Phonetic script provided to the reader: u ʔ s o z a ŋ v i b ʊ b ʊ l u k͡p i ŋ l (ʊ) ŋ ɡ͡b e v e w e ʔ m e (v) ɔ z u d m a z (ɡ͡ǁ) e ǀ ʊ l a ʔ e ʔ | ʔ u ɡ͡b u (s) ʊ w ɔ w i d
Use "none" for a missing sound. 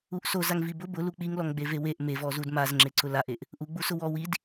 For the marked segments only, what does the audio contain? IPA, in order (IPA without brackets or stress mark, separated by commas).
ɔ, v, ŋ͡ǁ, s